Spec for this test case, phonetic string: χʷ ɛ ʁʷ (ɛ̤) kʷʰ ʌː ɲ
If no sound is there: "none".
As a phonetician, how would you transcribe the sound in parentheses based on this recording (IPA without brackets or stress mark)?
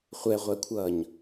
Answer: ɛ